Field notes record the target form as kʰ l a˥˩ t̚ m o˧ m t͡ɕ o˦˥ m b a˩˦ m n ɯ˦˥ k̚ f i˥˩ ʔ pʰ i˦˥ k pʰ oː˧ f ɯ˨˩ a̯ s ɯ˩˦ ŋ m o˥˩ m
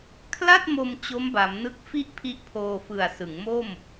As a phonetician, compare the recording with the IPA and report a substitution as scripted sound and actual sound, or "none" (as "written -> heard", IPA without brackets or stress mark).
k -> ʔ